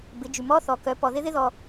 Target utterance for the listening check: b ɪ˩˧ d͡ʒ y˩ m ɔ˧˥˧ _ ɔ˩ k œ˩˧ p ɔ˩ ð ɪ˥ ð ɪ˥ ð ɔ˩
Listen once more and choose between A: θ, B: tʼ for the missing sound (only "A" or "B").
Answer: A